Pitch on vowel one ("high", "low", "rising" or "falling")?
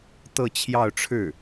falling